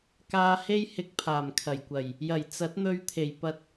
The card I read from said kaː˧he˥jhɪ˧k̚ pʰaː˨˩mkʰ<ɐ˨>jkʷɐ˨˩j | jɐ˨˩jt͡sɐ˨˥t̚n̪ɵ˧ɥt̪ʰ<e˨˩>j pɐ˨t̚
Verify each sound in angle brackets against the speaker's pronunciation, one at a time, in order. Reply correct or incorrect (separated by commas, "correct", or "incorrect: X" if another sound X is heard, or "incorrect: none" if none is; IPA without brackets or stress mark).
incorrect: ɐ˨˩, correct